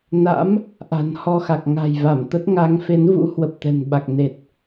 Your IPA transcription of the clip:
n a̰˧˥ m | ʔ a̤˨˩ n h ɔ˧ x a˨˩ k̚ ŋ a̤˨˩ j v a˧˩ m t̪ ə˦˥ t̚ ŋ a˨˦ ŋ f e˨˦ n v ṵ˧˥ h w ə˨˩ p̚ t̪ ɛ̤˨˩ n ɓ a˨˩ k̚ n e˨˩ t̚

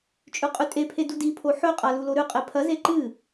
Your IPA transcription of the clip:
t͡ʃʼ ʉ qʼ ʉ tʼ e pʰ e d u d i pʰ o ħ ɵ qʼ a l u l o ɾ ʉ qʼ e pʰ ɐ z e ǃ ɨ

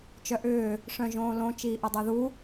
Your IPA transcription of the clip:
t͡ʃ œ ʔ ʏː | ʂ œ̃ ʒ õː l õ t͡ʃ iː ʔ o dˤ œ ð u

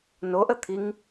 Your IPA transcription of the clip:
n o ʔ ə t̪ʰ i ŋ

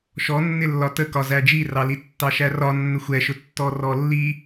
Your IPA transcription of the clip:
ʃ ɔ nː ɪ lː ɒ t ə k ɒ z æ d͡ʒ i r ɑ l i tː ɑ ʃ æ r ɒ nː ə xʷ ɛ ʃ ʊ tː ɔ r ɔ lː i

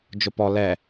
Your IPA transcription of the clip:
d͡ʒ ʊ p ɔ l ɛ

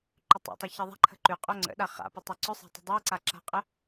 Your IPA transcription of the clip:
ǃ ʏ tˤ o̰ tˤ ɘ ç ɘ ðˤ a̤ ǃʰ ə̤ ǃ ʉ qʼ o ŋ͡ǀ ə̰ ɗ a χ a̰ p ə tˤ e ǀ ʏ sˤ a̤ tˤ ə̤ dˤ e ǀ a ǁ a̤ qʼ ə

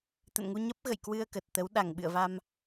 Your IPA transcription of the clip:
t̪ ə̰˧˨ n ŋ u˧ ɲ ə˦˥ p̚ ɣ ə̰˧˨ j k w ɨ˧ ə̯ k ə˨˩ t̚ t̪ ə˨˦ w ɗ a˧˩ ŋ ɓ ɨ̰˧˨ ə̯ v a˧ m

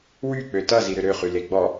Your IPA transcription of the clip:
w y k͡p ø t ʌ z i ɾ ʏ ɾ ø χ y l e ɡ͡b ɔ

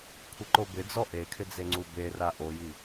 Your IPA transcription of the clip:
kʷʰ ɪ ǃ o b ɪ d͡z ɔ ʔ e kʰ ɪ d͡z e ŋ͡ǀ u b e r a ʔ o j i

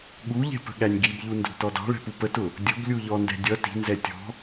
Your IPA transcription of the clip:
ɠ u ʎ ɛ̤ p ə̤ ɠ æ nʲ ɡ i b ʎ u n d ə̤ d t ɔ d ɑ̤ ɭ ɛ̤ p u p ə t ʊ | dʲ ʊ b lʲ u ʎ ɔ n d ɛ̤ dʲ ʌ t i̤ n z ɛ tʲ ɔ̤

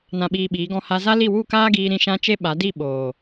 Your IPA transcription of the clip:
n ã˧ ɓ iː˧ ɓ iː˨˦ ɡ ɔ̃˧ h a˧ z a˦ l i˦˨ w u˦˨ k aː˦ ɡ iː˧ ɾ ĩ˦ ʃ ã˦ t͡ʃ e˦ ɓ a˨˦ d i˦˨ ɓ oː˨

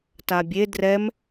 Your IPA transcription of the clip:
t a bʲ e d r ɛ m

